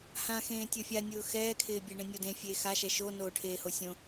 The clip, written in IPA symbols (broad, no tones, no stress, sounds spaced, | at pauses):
h ã x ẽː tʲ o fʲ a nʲ ʊː x ɛː kʰ ɪː bʲ e ɳ ẽ nʲ o d ẽ fʲ eː x a ʃ ɛ ʃ o n oː ʈʰ eː h o sʲ õ